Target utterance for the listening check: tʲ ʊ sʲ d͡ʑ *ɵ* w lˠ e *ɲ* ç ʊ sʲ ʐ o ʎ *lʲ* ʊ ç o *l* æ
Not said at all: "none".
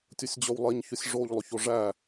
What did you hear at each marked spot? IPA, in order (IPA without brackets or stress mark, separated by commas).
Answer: ɵ, ɲ, lˠ, ʐ